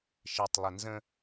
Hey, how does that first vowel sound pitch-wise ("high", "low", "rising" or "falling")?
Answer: low